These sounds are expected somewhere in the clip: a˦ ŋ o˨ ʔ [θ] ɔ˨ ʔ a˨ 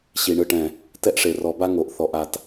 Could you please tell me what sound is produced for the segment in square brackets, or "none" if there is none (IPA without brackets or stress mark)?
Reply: θ